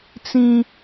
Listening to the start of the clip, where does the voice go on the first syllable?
high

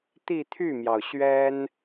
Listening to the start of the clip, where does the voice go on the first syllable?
falling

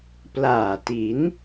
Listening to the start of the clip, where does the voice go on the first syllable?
low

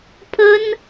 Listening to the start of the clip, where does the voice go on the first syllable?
high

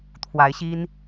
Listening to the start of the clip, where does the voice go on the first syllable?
rising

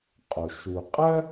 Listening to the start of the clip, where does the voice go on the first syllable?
low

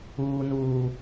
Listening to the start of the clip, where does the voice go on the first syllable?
low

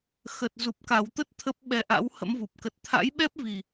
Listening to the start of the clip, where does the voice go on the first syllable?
low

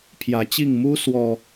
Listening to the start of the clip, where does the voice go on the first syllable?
rising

